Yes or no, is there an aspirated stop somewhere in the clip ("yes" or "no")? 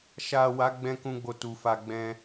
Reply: no